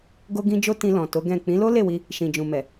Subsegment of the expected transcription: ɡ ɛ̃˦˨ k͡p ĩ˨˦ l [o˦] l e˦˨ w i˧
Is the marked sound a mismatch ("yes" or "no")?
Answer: no